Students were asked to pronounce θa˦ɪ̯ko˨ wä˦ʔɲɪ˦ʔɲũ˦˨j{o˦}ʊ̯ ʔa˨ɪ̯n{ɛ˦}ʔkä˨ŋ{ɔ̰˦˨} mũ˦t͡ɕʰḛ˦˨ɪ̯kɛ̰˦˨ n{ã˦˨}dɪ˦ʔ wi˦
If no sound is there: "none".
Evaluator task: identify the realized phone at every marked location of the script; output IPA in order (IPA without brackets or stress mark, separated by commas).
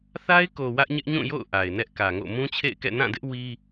o̰˦˨, ɛ˦, o̰˦˨, ã˦˨